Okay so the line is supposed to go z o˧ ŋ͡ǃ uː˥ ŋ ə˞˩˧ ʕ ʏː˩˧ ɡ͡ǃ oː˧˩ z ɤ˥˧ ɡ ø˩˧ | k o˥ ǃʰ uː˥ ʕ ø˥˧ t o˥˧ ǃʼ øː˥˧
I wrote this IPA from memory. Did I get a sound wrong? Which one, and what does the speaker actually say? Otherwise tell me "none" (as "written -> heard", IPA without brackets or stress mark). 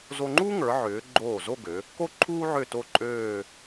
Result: ɤ˥˧ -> o˥˧